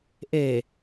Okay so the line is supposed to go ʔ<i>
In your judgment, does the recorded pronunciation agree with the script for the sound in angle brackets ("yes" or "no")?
no